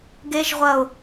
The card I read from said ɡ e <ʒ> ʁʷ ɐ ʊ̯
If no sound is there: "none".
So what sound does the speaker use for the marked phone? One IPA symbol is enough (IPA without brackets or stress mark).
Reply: ʒ